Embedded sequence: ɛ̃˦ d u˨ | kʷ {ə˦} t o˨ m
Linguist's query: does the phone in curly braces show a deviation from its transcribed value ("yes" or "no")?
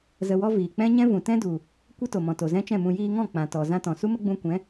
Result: no